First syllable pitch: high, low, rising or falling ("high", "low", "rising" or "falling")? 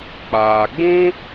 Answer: low